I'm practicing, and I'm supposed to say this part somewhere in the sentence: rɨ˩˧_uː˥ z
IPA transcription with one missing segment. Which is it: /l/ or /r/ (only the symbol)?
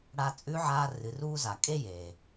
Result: r